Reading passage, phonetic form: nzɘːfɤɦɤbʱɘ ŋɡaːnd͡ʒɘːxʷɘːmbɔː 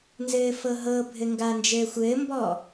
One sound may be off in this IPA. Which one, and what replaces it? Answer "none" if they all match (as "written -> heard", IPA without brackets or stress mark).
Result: none